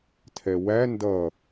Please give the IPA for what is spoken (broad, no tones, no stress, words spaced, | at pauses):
tʰɛwæ ndʌ